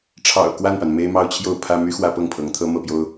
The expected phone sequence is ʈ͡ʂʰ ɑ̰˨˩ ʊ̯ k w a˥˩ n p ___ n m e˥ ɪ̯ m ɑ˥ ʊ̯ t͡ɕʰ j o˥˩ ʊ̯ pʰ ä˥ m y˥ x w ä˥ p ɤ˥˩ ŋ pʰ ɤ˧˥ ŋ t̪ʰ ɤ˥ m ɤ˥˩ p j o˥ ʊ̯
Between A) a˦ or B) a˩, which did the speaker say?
B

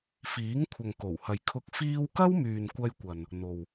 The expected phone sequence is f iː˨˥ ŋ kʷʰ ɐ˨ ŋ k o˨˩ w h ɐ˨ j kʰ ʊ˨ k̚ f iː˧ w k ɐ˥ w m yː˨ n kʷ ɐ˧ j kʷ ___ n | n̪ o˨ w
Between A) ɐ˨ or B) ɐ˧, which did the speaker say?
A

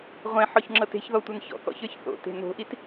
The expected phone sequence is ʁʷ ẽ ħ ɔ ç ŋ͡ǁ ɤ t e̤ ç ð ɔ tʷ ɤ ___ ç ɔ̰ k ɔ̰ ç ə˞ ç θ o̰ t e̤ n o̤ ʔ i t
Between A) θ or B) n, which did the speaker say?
B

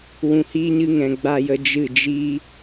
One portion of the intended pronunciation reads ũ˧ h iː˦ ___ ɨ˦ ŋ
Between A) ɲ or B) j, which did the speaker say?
A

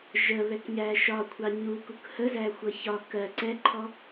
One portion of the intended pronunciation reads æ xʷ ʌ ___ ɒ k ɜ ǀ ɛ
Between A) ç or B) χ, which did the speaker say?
A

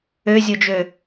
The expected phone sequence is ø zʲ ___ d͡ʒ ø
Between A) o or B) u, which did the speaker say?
A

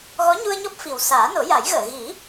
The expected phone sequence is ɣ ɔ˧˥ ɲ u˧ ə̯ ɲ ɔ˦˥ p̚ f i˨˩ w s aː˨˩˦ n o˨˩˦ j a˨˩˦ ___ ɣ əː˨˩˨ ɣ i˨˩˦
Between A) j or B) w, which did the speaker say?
A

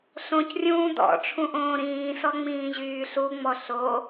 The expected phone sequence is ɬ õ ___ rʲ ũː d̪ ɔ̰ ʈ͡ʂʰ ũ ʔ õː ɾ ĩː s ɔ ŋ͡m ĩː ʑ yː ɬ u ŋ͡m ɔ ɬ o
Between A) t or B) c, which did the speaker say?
B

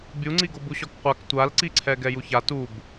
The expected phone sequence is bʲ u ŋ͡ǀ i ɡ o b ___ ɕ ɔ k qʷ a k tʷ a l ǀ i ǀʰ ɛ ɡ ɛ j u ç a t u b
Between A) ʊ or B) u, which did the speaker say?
B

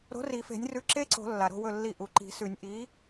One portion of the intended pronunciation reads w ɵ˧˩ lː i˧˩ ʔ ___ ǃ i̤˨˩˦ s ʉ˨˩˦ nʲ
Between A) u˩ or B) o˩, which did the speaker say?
A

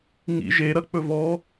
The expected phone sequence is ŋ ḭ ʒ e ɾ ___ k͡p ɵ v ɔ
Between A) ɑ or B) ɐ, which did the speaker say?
B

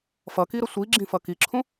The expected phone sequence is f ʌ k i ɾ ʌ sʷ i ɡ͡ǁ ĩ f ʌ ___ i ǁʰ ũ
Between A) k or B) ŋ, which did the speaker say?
A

